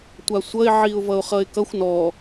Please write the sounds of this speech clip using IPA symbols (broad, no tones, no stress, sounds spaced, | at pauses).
tʷ a sʷ ʌ ɪ̯ ʕ i ʊ̯ v ʌ ʊ̯ χ ʌ ɪ̯ k ʌ xʷ n ɔ